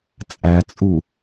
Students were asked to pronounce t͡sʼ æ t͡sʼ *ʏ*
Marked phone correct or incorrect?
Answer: incorrect